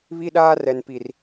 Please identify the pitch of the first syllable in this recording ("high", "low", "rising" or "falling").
high